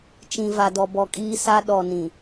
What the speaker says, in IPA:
t͡ʃ ĩ˨ v a˨ d ɔ˨ b ɔ˨ kʼ iː˦ s a˦ ɗ ɔ˨ n ĩ˨

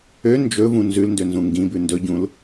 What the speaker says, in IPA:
ø n d͡ʒ ɵ v ũ n z ʉ l n d ø n z ũ ŋ ɡ ĩ b ʉ n d ɵ ɟ ũ l

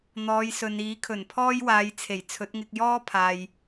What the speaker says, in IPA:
n̪ ɔː˨˧ j s ɵ˨ n iː˨˥ kʰ ɵ˨˩ n pʰ ɔː˥ j w aː˨˧ j t͡sʰ e˨˩ j t͡sʰ ɵ˨˥ t̚ ŋ ɪ˧ k̚ j ɔː˥ pʰ aː˨ j

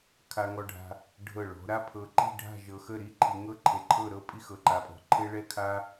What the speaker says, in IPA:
kʰ a˧ ŋ ɔ˧ ɖʱ a̤˧ | ɖʱ ɤ˧˩ ɭ ɔ̤˩˧ ɾ a˥ pʰ ɤ˧ ǃ i̤˥˧ ɖʱ a̤˥˧ ʒ ɤ˧ x ə˥˧ ɾ i˥˧ ǃʰ i˧ ŋ ɤ˥ ǃʰ e˧˩ ǃʰ ɤ˥˧ ɾ ɤ˥ pʼ i˥ x ɤ˧ ǃ a˧ pʼ ɔ̤˧˩ ǃʰ e˥ ɭ ɛ˥ kʰ a˥

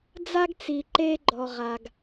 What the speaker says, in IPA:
d͡z a˦ ɡ t͡s i˨ ǃ eː˦ ɡ͡ǃ ɔ˨ ʁ a˨ ɡ

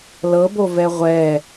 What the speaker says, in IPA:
l ɤ b o v ɛ ʁʷ ɛ

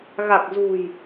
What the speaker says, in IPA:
ɣ a˨˩ k̚ z ṳ˨˩ j

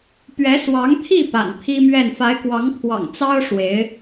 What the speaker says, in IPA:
p ɥ ɛ˧˥ s w ɑ˧˥ ŋ t̪ʰ i˥˩ p a̰˨˩ n pʰ i˥ m ɥ ɛ˥˩ n f a˧˥ ɪ̯ k w ɑ˧˥ ŋ pʰ w ɑ̰˨˩ ŋ t͡s ɑ˥ ʊ̯ ʂ w e˧˥ ɪ̯

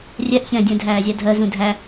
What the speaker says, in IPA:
rʲ ɛ ʔ ç ɛ̃ dʲ ɛ̃ dʱ æː zʲ æ dʱ ɜ z ũ dʱ æ

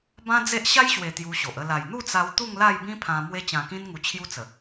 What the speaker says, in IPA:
b ã˦ d͡z e˦ ʔ ɕ a˦ j ɕ w e˨˩ t̪ j u˧ ɕ o˨ ʔ ə˥˧ l a˨˩ j n̪ u˥˧ t͡s a˧ w t̪ u˥˧ ŋ l a˥˧ j b ĩ˦ pʰ ã˧ m w e˧ t͡ɕ ã˨˩ k ĩ˧ n ŋ u˨˩ t͡ɕʰ j u˦ t͡s ə˨˩

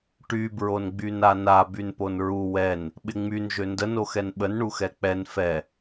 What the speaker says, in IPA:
ʈ y b ɹ o n ɡ͡b y n a n a b y n p o n ɹ u w ɛ n | ɓ ɪ ŋ͡m y n ʒ ø n d ə n o x ɛ n ɓ ə n ɳ u x ɛ k͡p ɛ n f ɛ

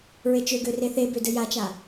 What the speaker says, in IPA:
ɹ e t͡ʃ ø ɡ ø r e θ e b ø d ɘ j a t͡ʃ a

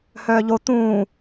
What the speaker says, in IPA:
h œː ʎ o t̪ ũː

